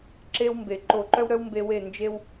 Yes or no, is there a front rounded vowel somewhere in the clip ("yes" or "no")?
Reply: yes